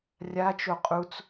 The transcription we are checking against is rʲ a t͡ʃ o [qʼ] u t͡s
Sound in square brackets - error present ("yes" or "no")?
no